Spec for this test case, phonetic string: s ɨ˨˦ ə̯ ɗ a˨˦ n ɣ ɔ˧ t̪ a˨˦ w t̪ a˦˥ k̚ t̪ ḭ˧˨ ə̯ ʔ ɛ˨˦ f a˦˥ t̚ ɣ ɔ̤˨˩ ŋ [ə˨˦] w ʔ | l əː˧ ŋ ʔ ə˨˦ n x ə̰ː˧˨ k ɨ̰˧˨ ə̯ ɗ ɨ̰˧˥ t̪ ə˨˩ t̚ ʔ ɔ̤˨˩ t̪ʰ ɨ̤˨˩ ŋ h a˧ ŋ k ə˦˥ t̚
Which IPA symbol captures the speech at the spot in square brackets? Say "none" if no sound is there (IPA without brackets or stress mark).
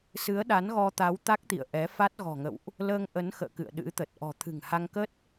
ə̰˧˨